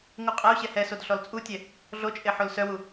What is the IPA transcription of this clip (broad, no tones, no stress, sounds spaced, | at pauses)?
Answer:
ŋ u qʼ ɛ u̯ ɕ ɛ h ɛ s o d ɬ ɔ l t͡sʼ u tʲ ɛ | ɮ o t͡ʃʼ e ħ o l s œ w u